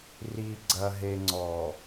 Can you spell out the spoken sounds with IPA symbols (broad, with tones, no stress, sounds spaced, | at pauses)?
r i˨ ɡ͡ǀ ɐ˨ ɦ e˨ ŋ͡ǀ ɔ˨